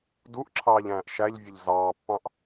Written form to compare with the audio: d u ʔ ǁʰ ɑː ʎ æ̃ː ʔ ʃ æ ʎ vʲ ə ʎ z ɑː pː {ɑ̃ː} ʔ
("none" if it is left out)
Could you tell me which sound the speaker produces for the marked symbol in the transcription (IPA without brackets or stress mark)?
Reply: ɑ̃